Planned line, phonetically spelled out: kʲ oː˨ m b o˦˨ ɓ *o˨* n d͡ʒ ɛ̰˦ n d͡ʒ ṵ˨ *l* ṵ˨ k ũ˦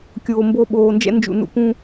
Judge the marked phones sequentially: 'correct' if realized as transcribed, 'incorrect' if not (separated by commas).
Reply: incorrect, incorrect